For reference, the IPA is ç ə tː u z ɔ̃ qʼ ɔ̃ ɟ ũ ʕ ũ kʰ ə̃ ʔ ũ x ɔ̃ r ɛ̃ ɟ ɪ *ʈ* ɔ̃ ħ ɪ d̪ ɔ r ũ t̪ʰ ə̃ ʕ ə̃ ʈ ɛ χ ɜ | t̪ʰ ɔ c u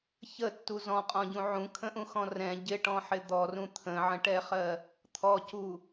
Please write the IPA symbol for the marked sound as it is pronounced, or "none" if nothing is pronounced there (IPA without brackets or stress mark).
ʈ